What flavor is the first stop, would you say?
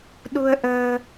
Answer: implosive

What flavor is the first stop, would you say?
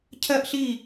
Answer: aspirated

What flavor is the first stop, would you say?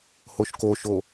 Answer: plain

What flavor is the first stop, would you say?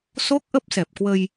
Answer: plain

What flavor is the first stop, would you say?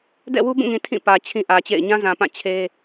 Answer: plain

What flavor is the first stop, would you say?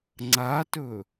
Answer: click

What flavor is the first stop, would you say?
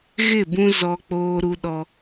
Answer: plain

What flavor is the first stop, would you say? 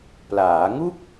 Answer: plain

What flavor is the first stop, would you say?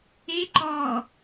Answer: click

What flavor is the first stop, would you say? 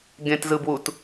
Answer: plain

